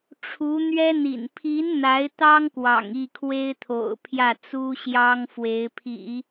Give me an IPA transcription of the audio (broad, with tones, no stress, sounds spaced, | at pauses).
ʈ͡ʂʰ u˧˥ n̪ ɥ ɛ˥ n̪ ḭ˨˩ n pʰ i˧˥ n n̪ a˧˥ ɪ̯ t̪ ɑ˥ ŋ k w ɑ̰˨˩ ŋ i˥˩ kʰ w e˥ ɪ̯ t̪ʰ o̰˨˩ ʊ̯ pʰ j ä˥˩ t͡s u˥ ɕ j ɑ˥ ŋ f w e˧˥ ɪ̯ pʰ ḭ˨˩˦